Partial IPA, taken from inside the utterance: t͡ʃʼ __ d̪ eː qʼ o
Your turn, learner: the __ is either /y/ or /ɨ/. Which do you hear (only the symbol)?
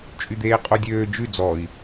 y